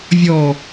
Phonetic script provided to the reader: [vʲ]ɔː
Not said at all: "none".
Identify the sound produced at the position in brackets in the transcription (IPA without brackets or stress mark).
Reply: vʲ